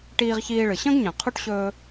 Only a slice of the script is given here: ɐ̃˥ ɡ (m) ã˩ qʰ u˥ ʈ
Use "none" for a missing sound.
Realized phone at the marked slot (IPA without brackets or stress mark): ɲ